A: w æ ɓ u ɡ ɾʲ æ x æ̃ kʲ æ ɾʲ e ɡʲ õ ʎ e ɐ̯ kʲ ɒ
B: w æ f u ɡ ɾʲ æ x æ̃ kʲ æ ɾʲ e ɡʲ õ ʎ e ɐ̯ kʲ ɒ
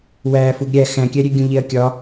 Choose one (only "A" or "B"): B